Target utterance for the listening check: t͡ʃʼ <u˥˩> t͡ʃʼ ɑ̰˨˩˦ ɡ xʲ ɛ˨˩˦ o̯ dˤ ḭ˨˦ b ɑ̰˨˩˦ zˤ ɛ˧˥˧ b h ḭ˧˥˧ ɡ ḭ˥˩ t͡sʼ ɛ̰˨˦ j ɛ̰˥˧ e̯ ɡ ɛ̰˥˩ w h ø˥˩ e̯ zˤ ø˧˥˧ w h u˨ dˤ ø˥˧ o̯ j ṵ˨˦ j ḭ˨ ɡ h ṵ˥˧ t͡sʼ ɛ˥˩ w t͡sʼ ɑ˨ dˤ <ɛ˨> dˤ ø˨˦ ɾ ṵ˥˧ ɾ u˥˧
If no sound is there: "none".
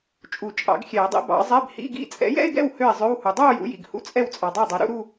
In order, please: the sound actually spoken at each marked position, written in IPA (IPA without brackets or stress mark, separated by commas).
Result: u˨˩˦, ɛ˥˩